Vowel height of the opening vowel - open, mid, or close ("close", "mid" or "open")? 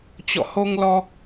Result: mid